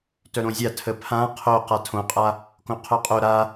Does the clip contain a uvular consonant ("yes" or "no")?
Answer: yes